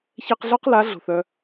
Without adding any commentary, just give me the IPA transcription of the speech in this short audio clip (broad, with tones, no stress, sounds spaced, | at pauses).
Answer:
ç ɛ˧ q ɮ ɔ˦ q l a˨˦ ɮ o̤˨ θ œ˧